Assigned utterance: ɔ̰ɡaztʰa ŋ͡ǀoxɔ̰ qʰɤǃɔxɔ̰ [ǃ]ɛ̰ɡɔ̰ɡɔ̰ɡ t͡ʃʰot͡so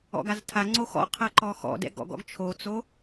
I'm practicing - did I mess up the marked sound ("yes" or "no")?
yes